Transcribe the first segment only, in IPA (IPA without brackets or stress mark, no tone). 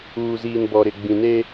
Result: uː